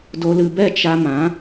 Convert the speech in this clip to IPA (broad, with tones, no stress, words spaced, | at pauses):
do˧lɨ˧bɛ˦˨ t͡ʃa˧mã˨˦